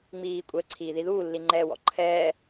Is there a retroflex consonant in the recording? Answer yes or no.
no